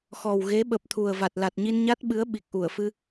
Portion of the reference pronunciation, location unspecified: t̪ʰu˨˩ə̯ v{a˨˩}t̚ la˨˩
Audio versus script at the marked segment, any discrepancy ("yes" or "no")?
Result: no